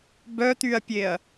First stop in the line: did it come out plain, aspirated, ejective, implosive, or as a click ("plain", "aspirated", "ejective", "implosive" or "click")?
plain